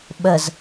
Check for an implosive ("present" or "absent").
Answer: present